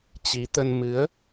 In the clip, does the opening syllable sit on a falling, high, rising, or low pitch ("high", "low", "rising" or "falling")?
rising